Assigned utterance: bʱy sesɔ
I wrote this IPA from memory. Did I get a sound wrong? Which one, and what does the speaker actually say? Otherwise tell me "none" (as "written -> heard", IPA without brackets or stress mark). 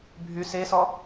none